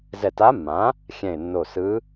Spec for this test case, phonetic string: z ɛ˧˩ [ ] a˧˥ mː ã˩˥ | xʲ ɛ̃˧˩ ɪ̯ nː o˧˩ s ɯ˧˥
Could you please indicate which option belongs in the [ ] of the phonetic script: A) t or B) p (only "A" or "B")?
A